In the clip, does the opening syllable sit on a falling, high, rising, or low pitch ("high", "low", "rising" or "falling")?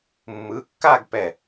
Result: rising